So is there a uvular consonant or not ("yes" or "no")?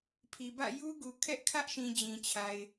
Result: no